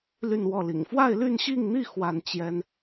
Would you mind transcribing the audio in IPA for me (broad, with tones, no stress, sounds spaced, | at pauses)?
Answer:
l y˥˧ n w ɔ˥˩ l ḭ˨˩ ŋ f w a˥˧ ɪ̯ l y˥˧ n ɕ i˥˧ ŋ n̪ i˥˧ x w a˥˩ n t͡ɕ j ɛ˥ n